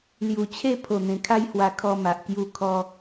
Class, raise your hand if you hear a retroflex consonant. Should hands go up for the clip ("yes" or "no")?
no